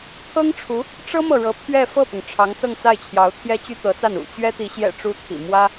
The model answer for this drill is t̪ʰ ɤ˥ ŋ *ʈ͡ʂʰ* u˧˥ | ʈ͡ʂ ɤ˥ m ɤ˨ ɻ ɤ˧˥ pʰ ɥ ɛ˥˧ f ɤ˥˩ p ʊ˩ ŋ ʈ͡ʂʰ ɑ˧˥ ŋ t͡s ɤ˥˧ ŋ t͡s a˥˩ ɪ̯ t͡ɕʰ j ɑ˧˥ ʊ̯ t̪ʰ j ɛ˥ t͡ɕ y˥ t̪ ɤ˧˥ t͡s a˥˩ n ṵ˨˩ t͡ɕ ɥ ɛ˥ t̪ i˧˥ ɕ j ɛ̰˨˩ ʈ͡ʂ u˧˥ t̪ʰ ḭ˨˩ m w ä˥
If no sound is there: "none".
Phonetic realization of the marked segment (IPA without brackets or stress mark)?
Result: ʈ͡ʂʰ